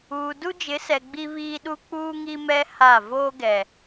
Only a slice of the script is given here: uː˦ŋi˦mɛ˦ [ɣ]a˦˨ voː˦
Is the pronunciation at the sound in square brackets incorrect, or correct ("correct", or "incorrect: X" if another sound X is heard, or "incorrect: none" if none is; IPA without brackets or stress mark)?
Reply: incorrect: h